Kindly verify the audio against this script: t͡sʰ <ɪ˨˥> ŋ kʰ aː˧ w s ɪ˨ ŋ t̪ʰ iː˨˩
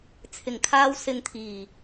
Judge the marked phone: incorrect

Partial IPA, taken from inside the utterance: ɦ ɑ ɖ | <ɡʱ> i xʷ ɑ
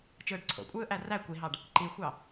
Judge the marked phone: incorrect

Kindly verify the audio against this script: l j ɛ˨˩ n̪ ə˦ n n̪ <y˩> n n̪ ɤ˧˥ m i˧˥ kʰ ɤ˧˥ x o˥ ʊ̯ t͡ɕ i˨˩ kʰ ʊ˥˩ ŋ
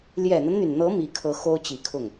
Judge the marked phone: correct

